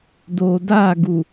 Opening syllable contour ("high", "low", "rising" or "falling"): low